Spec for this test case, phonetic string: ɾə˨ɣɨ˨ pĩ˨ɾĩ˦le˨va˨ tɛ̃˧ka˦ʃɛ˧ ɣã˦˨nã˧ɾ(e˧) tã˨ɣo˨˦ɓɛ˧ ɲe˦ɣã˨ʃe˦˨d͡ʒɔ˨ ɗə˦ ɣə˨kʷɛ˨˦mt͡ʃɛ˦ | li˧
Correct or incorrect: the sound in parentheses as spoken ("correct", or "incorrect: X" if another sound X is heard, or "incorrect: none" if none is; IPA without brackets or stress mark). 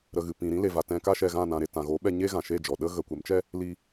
correct